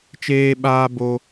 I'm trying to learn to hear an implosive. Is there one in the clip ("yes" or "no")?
yes